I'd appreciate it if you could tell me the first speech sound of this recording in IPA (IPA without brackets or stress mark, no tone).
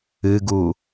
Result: ɨ